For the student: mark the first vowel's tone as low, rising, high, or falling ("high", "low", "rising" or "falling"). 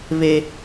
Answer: high